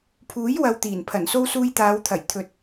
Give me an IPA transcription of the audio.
pʰ uː˨˥ j w ɐ˧ w t̪ iː˨˩ n pʰ ɐ˨˩ n s o˥ w s uː˧ j t̪ aː˨˧ w t̪ʰ ɐ˨˩ j t̪ʰ ɵ˨ t̚

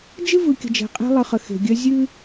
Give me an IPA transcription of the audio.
d͡ʒ ɨ˦ v ɯ˨ kʲ ə̤˨ d͡ʒ ɛ̤˨ qʼ e̤˦ lˠ ɯ˨ χ ə˨ x e̤˨ ɡʲ œ˦ zʲ ɨ˦

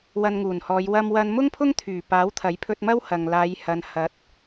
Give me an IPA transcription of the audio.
w ɐ˧ n ŋ uː˨˩ n h ɔː˨˧ j w ɐ˧ m w ɐ˧ n m ʊ˥ ŋ pʰ ʊ˥ ŋ t̪ʰ yː˨˩ p aː˨˥ w t̪ʰ ɐ˨˥ j pʰ ɵ˧ t̚ m ɐ˥ w h ɐ˨ ŋ l aː˨˧ j h ɐ˨˧ n h ɐ˨˥ t̚

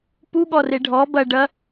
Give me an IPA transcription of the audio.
p u ɠ ɔ r e ɖʱ ɔ b ɐ ɖ ɐ

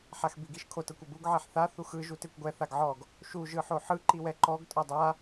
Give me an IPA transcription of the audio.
ħ a x b i ɡ i ʃ kʰ o t ɤ kʷ o b u ɡ ʕ ɛ ħ θ a θ u x ɯ ʒ u t e kʷ ɡʷ ɛ θ a ɡ ʕ ɔ ɡ | ʃ u ʒ ɯ ħ o ħ ɯ ǃ i w ɛ ǃ ɔ ɡ tʼ ɤ dˤ a

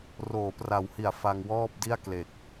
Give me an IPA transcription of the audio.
r oː˩˦ p r a˨˩ w h i˩˦ a̯ f a˧ ŋ w ɔː˥˩ p̚ d i˥˩ a̯ k l e˨˩ k̚

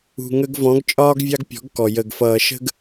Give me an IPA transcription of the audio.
ṳ˨ ŋ ə˧ ɡ v ɔ̃˨˦ ɡ t͡ʃʼ ɒː˦ ɡ vʲ ɑ˦ ɡ pʲ ɔ̤˨˦ ɡ k ɔ˨ j ə˨ ɡ f ʌː˨ ʃ ə̤˧ ɡ

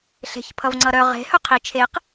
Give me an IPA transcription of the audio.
ɬ e̤ ç pʰ ʌ v ŋ͡ǀ ʌ ɾ œ ʁ e̤ h œ qʰ i t͡ʃʰ e q

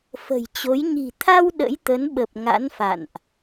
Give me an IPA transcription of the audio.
f ə̤˨˩ j t͡ɕ o˨˦ j ɲ i̤˨˩ t̪ʰ a˧ w ɗ ə̰˧˥ j t̪ ə˨˦ n ɓ ə˨˩ p̚ ŋ a̰˧˥ n f a̰˧˨ n ʔ

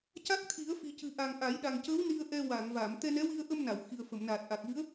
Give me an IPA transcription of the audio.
c a˦˥ k̚ t̪ʰ i˨˩˦ ə̯ f i˨˩ c ɨ˨˩ ʔ a˨˩ ŋ ʔ a˨˩˦ j ɗ a˨˩ ŋ c ə˧˥ w n i˧ ə̯ ʔ ɛ˧ w a˨˩˨ ŋ v a˨˩˨ m t̪ ɛ˧ n ɛ˧˥ w i˧ ə̯ ʔ ə˧ m n a˨˩˨ w x i˨˩ ə̯ f ə˨˩˨ m n aː˨˩ t̚ ʔ a˨˩ k̚ v ɨ˧˥ ə̯

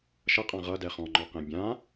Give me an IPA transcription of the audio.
ʃ ʌ qʼ ã ʁ ʌ d ɛ χ ɔ̃ ŋ͡ǃ ɔ q ẽ bʲ ã

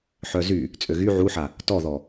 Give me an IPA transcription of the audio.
ħ œ z y | t͡sʼ ø ɣ y ʕ u ħ a | t ɔ ð ɔ

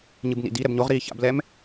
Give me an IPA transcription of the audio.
ɲ ɨ b n ḭ d i ɾ ɛ b ɲ o ʁ ɾ iː ç a̰ b l ɛ m

